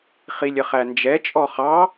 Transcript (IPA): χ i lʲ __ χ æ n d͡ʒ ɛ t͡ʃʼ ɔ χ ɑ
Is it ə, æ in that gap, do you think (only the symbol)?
ə